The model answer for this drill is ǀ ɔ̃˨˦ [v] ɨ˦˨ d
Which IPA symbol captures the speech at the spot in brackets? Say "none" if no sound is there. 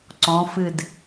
f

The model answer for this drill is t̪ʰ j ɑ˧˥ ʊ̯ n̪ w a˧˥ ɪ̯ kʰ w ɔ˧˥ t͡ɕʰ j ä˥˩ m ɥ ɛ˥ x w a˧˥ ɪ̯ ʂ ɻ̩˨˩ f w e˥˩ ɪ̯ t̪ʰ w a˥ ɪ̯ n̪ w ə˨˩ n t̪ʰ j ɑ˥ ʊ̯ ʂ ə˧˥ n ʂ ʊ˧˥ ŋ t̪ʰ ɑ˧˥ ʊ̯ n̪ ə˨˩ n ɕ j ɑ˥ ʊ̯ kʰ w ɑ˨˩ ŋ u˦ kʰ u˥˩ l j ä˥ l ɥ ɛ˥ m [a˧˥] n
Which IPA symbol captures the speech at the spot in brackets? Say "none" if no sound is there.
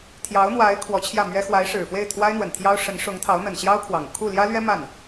a˥˩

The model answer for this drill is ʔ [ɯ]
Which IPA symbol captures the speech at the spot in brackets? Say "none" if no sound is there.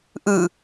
ɯ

